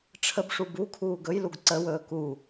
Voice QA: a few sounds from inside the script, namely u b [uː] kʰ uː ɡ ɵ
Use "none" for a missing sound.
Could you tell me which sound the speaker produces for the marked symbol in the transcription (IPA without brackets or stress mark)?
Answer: u